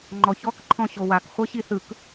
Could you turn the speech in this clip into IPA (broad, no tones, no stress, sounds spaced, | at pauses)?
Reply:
ŋ͡ǃ ɔ ç ɔ k ǃʰ ɔ̃ ɕ o w a k χʷ ɤ ɕ i θ ɯ k